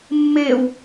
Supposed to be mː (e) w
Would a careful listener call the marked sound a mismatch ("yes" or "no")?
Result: no